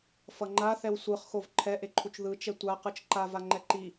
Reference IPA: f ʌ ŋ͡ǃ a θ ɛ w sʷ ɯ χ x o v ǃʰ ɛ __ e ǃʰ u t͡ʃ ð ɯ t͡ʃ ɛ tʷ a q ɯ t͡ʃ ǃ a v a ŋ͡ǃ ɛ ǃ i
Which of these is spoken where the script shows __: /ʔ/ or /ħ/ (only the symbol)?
ʔ